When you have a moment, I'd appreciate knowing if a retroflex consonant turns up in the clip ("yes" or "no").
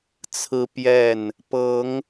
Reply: no